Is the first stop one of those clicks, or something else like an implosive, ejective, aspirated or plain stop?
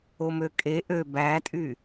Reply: ejective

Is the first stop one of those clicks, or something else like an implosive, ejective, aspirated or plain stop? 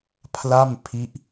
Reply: aspirated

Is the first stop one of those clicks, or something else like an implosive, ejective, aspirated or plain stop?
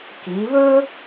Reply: plain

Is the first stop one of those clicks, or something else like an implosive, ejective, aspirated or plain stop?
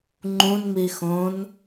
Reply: click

